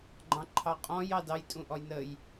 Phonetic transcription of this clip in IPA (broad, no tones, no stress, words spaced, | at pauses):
ɡ͡ǃɑ̃ǃʰɑqʼɔ̃j ɑdɑj tʼũʔɔjnəj